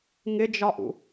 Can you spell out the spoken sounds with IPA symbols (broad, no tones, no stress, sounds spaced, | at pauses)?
ŋ ɪ d͡ʒ ɒ ʔ ṵ